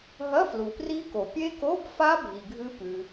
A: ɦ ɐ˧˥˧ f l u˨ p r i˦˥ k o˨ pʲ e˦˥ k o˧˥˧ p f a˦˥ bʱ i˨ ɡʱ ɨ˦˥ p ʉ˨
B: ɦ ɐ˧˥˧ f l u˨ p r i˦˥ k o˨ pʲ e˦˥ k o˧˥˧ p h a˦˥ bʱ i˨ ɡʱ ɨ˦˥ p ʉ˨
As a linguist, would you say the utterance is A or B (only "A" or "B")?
A